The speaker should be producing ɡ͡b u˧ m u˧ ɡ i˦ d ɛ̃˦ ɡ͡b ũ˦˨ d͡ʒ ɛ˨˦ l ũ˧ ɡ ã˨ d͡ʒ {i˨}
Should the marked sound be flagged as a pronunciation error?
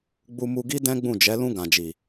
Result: no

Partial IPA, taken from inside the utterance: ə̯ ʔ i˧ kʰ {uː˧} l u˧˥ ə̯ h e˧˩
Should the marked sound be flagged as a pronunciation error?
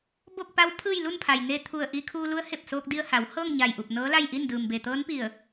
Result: no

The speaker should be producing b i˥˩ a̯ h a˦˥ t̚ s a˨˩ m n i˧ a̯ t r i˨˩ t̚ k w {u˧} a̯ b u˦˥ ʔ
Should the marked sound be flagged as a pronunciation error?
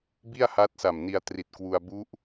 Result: no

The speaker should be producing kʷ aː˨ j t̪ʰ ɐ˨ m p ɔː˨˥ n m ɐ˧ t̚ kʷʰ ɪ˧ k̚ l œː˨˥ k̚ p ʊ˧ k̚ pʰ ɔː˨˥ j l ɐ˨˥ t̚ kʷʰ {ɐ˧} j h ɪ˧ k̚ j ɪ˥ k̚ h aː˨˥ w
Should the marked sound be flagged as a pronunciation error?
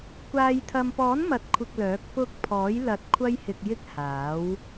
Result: yes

